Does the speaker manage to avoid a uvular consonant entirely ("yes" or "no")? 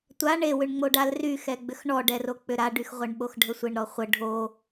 no